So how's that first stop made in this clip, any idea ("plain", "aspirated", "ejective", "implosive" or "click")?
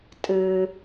ejective